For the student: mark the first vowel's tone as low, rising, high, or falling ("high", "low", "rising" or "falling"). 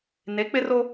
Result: rising